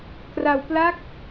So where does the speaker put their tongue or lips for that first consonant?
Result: velum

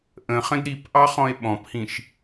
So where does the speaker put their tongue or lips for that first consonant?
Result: throat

